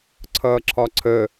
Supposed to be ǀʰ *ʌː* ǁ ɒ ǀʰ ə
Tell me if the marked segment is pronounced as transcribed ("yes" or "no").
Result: yes